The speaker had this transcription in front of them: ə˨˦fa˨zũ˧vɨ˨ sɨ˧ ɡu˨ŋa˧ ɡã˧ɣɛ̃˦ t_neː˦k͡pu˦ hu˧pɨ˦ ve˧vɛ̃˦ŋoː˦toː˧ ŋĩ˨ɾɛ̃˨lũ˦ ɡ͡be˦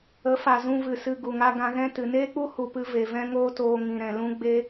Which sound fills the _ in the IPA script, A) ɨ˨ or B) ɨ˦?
A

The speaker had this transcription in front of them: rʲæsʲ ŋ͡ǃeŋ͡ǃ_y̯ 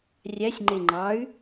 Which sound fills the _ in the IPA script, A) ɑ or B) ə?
A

